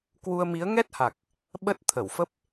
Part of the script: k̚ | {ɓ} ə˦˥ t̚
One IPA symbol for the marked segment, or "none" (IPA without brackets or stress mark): ɓ